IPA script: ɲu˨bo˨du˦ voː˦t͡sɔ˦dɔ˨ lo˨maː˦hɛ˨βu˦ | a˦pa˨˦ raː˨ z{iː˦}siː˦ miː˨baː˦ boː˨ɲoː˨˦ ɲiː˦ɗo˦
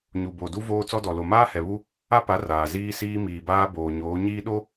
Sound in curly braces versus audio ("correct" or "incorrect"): correct